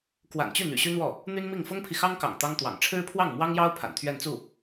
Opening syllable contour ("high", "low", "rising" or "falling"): low